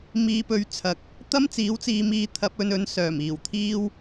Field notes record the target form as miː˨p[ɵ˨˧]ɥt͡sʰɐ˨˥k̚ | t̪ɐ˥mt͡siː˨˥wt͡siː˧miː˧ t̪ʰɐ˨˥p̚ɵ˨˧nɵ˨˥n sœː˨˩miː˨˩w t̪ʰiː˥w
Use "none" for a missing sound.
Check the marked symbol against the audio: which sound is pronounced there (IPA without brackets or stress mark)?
ɵ˨˧